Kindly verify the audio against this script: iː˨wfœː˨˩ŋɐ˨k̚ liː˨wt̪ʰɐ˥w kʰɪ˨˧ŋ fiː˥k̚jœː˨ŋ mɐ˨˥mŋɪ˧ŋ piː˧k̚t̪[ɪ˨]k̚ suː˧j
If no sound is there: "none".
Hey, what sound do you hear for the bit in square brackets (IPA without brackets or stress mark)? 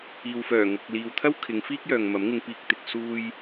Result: ɪ˨